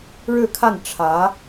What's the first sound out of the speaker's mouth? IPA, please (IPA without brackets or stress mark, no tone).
ɻ